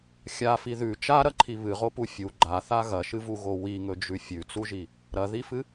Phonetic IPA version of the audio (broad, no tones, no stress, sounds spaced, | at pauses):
xʲ a f i ð ʉ t͡ʃ a ɾ ɐ ǃʰ i β ɨ ʁ o p u fʲ u ɡ͡ǃ a θ a ɣ ɐ ʃ ɨ v u ɣ o w i ŋ ɵ d͡ʒ ʉ fʲ ʉ t͡s u ʒ i | ɾ ɐ ð i f ɨ